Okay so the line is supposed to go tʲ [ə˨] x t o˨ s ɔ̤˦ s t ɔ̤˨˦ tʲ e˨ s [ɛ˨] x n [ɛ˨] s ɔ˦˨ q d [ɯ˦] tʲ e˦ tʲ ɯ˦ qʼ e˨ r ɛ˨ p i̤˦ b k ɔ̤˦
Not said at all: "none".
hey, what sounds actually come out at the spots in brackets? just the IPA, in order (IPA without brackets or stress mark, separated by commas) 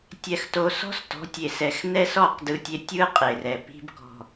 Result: ɛ˨, ɛ˨, ɛ˦, ɯ˦